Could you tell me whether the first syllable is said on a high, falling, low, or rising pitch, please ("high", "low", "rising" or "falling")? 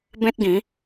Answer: high